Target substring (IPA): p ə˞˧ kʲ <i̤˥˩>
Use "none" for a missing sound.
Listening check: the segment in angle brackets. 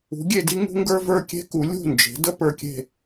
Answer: e̤˥˩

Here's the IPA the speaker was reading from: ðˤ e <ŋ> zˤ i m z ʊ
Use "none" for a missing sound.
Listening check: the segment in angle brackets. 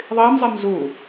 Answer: m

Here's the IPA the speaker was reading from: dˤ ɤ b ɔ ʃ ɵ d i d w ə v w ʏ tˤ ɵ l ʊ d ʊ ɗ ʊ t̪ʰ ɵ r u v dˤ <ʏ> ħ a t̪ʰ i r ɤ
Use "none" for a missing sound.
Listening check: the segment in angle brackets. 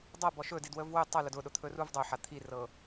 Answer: ʏ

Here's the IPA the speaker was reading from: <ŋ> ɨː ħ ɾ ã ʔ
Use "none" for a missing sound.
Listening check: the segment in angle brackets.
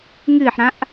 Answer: ŋ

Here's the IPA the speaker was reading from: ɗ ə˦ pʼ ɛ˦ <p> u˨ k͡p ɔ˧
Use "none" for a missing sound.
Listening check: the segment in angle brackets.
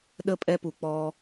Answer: p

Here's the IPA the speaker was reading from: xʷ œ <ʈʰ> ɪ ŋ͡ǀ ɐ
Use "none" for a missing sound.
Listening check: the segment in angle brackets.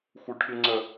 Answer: ʈʰ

